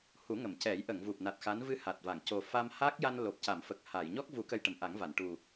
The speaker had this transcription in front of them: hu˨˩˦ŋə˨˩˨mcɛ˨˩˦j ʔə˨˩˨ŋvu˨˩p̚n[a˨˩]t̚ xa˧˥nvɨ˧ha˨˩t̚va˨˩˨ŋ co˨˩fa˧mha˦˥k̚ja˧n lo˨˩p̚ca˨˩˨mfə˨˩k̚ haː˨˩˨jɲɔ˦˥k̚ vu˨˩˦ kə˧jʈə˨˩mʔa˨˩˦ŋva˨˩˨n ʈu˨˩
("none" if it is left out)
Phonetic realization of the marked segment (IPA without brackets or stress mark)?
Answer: a˨˩